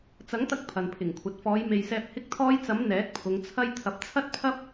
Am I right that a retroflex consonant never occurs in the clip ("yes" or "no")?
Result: yes